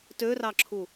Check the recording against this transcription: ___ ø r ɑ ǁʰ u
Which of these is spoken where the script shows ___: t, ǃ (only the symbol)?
t